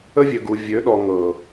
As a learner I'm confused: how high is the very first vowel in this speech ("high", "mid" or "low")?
mid